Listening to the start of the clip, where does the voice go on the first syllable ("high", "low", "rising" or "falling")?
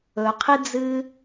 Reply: low